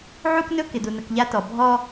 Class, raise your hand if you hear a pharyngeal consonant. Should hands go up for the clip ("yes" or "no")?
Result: yes